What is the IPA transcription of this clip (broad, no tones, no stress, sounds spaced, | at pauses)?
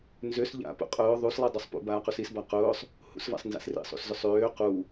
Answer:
n z ø s ʎ a̰ p ṵ qʼ ʊː ðˤ u s lˠ i dˤ ø sˤ p ṵ b aː q u s i s b a q ʊː sˤ | h ṵ s v a̰ sˤ n z a̰ s r ḭ sˤ ṵ s z ø sˤ øː q u